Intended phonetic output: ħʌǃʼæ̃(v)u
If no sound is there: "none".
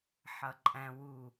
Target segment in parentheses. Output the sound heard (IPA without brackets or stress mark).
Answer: w